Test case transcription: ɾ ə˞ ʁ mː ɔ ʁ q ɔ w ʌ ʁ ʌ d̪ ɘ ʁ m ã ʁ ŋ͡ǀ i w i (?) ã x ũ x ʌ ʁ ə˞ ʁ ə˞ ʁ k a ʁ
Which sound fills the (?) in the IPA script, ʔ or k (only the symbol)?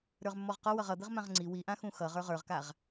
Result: ʔ